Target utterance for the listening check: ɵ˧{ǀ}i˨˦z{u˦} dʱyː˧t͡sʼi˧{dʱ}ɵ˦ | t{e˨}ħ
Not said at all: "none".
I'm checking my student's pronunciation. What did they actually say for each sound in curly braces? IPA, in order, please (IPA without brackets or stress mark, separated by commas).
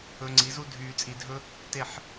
ŋ͡ǀ, u˦, dʱ, e˦˨